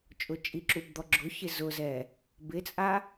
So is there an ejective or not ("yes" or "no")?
yes